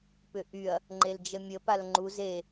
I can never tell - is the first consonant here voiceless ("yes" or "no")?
yes